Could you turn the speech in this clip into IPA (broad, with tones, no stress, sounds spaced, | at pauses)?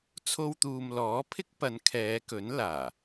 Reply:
t͡sʰ o˧ w t̪ uː˨ m l ɔː˨˥ pʰ ɪ˥ k̚ p ɐ˨˧ n kʰ ɛː˨˧ k ɵ˨˥ n l aː˨˩